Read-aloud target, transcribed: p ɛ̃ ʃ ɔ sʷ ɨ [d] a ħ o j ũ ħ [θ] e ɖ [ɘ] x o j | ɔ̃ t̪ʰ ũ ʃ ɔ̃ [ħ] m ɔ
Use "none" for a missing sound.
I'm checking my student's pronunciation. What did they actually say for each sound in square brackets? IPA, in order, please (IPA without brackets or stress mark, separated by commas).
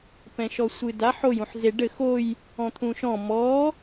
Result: d, z, ɘ, none